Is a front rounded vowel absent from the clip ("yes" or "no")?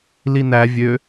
no